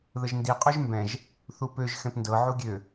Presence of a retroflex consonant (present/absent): absent